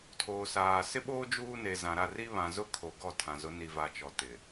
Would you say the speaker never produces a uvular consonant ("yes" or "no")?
yes